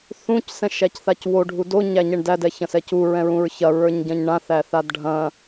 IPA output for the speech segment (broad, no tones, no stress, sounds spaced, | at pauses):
θ ũ c s ɛ̃ ʃ æ c θ a c w o ɖʱ u d o ɲ æ ɲ ɛ ɳ d æ d ɛ ç ɐ̃ s ɛ c u ɹ ɛ̃ ɹ ũ ɹ ç ɐ ɹ ə˞ ɲ ɟ ɐ̃ ɲ ɳ ã θ æ θ a d ɖʱ ɐ̃